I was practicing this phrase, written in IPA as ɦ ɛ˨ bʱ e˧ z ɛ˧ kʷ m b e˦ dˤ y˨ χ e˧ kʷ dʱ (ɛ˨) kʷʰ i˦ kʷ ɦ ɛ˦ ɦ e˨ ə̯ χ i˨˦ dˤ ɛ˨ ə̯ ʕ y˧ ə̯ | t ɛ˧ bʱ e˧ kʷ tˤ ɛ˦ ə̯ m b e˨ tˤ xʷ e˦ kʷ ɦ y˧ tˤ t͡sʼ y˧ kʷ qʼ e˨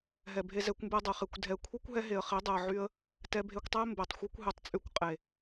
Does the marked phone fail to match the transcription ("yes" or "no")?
no